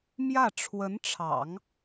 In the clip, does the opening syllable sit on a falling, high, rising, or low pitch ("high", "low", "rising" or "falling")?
falling